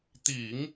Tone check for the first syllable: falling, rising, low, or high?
low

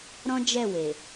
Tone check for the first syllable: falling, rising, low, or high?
high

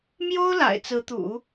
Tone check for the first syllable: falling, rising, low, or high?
high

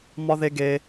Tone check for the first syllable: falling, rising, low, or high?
high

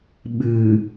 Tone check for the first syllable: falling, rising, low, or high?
low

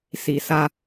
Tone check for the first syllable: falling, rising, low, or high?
low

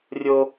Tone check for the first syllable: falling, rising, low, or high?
high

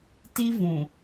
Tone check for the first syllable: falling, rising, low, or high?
high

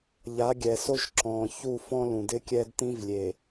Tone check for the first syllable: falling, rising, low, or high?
rising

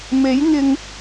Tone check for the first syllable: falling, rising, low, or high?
rising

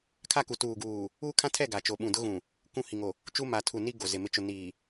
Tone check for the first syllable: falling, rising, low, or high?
falling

